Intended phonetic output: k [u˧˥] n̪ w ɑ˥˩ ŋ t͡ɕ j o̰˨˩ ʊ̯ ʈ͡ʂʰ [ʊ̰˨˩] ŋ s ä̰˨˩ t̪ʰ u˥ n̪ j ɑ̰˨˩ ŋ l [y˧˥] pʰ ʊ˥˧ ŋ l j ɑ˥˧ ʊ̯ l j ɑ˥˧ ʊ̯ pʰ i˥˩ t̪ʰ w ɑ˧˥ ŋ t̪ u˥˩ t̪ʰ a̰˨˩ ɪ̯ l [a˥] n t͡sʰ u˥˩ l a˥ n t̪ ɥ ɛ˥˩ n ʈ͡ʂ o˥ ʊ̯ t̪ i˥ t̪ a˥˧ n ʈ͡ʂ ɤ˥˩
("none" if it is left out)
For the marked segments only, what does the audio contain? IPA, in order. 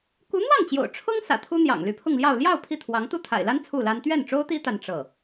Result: u˧˥, ʊ˥, y˧˥, a˥

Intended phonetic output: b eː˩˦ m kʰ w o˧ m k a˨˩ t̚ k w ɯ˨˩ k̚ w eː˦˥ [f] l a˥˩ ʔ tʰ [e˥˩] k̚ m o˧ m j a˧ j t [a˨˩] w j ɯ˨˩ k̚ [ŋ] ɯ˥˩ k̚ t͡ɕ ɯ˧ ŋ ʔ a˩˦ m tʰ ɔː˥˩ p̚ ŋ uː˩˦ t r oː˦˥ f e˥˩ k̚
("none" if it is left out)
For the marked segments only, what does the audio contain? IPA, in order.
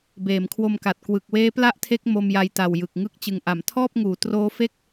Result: p, e˦˥, a˨˩, ŋ

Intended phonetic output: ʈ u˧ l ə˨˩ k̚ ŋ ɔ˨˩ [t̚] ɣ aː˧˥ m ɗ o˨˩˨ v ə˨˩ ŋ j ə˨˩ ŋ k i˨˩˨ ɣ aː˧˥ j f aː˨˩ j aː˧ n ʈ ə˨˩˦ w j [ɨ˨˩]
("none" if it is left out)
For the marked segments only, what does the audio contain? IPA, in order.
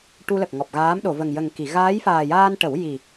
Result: p̚, i˨˩

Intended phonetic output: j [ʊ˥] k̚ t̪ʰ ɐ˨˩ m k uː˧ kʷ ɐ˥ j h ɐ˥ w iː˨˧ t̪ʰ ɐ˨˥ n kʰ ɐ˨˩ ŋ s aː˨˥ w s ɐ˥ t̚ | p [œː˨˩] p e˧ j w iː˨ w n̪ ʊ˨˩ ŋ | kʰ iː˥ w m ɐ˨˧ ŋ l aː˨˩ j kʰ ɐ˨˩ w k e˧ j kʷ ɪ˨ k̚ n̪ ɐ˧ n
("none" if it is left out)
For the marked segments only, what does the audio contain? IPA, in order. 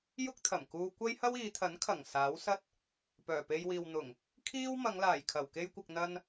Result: ʊ˥, œː˨˩

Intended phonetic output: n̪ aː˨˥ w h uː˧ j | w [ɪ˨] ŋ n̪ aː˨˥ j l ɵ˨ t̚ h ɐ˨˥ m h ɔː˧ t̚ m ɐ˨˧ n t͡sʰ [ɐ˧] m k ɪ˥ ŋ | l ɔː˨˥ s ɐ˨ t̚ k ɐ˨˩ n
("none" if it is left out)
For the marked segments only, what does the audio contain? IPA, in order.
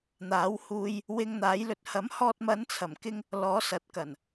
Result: ɪ˧, ɐ˨˩

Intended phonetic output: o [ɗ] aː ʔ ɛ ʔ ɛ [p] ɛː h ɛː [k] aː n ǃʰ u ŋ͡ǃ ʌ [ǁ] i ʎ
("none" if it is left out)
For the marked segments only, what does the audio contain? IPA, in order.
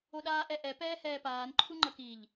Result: ɗ, p, p, k

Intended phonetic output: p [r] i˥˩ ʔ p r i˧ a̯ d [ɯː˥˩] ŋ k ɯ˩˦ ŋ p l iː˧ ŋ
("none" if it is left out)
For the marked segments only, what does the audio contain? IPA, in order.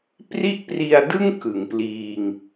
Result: r, ɯ˥˩

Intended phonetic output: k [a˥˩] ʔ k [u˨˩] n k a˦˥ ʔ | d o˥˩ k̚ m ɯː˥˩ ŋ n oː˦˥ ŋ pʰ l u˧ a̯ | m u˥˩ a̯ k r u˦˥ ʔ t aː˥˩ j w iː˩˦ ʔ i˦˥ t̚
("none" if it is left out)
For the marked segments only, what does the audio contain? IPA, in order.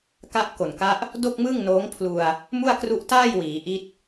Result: a˦˥, o˨˩

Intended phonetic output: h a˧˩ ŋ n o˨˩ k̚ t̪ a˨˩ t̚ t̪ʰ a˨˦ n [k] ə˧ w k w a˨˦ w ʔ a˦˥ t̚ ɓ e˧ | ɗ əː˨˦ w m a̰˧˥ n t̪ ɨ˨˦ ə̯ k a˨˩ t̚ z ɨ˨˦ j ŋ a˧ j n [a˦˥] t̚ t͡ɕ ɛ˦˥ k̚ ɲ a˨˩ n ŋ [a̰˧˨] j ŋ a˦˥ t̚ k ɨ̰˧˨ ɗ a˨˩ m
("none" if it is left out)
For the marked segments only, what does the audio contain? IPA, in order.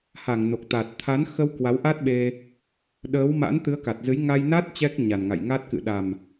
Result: x, a˦˥, a̰˧˨

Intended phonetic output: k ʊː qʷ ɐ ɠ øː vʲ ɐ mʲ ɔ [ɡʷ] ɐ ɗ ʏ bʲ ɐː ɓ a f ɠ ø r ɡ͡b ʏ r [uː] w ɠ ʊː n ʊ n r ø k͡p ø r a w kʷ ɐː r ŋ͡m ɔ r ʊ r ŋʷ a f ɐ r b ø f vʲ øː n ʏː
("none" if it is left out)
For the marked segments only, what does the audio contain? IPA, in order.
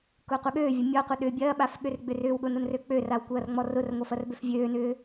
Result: qʷ, ʏː

